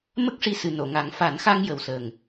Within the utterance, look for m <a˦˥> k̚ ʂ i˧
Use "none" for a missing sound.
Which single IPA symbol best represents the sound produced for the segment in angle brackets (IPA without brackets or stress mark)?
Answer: ə˦˥